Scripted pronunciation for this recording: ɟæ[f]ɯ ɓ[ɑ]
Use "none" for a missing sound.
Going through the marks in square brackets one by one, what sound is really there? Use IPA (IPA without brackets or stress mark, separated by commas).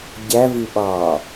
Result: v, ɑ